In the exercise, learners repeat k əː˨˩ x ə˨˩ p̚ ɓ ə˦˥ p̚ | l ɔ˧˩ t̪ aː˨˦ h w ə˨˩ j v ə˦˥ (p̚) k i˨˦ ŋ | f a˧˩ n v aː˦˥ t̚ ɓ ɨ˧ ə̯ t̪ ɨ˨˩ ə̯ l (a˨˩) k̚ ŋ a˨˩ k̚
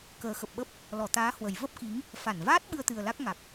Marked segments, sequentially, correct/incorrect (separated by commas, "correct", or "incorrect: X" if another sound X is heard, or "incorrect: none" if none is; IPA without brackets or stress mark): correct, incorrect: a˦˥